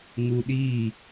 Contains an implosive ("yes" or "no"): yes